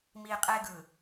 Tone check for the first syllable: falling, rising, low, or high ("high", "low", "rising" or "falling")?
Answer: low